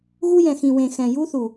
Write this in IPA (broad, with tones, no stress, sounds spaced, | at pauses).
ɣ u˦ j ɛ̃˨ x ĩ˨ w ẽ˨ x ɛ̃˨ j u˦ θ u˨